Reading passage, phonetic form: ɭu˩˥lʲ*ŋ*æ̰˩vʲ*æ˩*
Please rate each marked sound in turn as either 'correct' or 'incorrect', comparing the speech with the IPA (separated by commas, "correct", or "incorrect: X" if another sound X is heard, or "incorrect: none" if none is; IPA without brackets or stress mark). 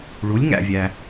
correct, correct